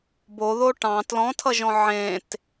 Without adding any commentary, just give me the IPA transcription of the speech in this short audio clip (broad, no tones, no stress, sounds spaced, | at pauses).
b o ð o ʈ ɑ̃ t l ɔ̃ tʰ ʌ ʒ ɔ̃ ʕ ẽ t